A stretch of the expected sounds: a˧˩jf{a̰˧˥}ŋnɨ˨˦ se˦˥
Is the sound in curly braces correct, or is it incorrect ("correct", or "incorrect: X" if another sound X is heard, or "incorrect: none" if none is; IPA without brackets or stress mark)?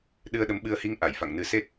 incorrect: a̰˧˨